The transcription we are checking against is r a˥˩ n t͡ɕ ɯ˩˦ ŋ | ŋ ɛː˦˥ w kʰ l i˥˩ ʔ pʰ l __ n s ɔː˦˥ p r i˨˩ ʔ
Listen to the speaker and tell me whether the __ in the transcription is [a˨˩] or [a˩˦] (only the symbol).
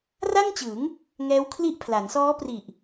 a˩˦